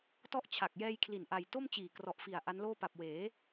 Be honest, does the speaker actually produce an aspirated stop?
yes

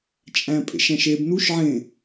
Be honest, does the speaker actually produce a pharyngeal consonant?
yes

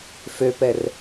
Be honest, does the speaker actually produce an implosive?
no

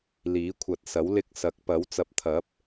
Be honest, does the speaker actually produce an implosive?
no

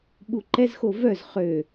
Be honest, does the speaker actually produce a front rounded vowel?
yes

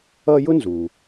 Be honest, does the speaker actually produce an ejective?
no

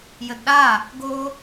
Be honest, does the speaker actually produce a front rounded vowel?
no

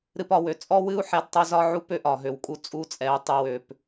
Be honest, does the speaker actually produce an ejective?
yes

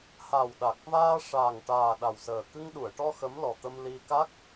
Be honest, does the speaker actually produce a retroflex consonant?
yes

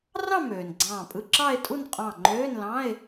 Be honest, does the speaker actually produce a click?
yes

